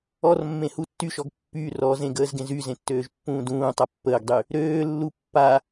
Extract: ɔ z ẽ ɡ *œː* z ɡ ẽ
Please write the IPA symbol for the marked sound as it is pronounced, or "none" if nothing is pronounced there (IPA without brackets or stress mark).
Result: əː